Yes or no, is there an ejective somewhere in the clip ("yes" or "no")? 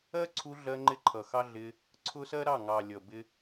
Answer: no